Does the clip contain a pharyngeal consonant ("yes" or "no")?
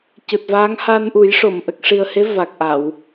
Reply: no